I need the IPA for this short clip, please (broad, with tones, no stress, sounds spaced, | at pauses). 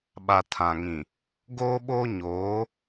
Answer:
ɓ a˨ tʰ ã˨ ŋ ĩ˨ | ɡ oː˦ ɓ oː˦ ɲ oː˨˦